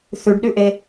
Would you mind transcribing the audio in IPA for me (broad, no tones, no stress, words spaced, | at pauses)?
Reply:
θʉɖɗʉʔe